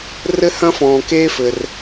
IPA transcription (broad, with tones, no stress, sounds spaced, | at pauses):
r ɘ˥ h ɐ̃˥ f ɔ̃ː˩ k eː˥ f ɘ˩ r